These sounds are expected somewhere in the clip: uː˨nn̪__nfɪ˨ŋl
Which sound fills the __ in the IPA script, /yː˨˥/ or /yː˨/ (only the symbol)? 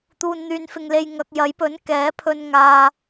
yː˨